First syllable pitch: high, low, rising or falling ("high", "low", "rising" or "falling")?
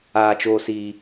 low